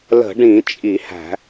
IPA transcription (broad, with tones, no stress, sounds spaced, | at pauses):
l ə̤˧˩˧ ɖ ĩ˧˩˧ t͡ʃʼ i˧˩˧ h æ̤˧˩˧